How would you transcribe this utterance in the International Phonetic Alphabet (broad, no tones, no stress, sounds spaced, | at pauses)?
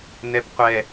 n ɛ p qʷ ɛ